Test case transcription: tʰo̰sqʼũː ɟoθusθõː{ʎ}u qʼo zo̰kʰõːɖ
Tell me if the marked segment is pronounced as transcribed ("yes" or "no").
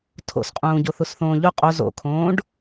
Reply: yes